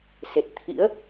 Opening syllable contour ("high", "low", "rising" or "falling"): low